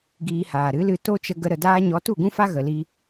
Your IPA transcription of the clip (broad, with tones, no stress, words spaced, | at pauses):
ɡiː˧haː˨ ɾɨ˨˦lɨ˧ to˦t͡ʃə˧ɡə˧ ɾə˧daː˦ ɲɔ˨˦tu˦˨ɡũ˦fa˦ ɣə˨li˧